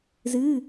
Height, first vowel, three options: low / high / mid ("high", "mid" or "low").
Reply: high